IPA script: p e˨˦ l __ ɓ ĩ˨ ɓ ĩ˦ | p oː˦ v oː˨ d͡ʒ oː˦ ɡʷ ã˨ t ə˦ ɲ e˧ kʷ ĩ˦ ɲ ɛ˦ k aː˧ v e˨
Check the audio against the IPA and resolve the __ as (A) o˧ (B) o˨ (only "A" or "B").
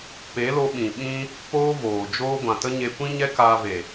A